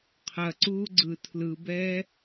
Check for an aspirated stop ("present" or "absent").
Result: present